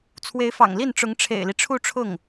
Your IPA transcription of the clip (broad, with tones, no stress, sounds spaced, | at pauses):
t͡sʰ w e˧˥ ɪ̯ f ɑ̰˨˩ ŋ l i˥˩ n ʈ͡ʂ ʊ˧˥ ŋ ʈ͡ʂʰ ḛ˨˩ ɪ̯ l i˦ ʈ͡ʂʰ u˥˧ ʈ͡ʂʰ ʊ˥˩ ŋ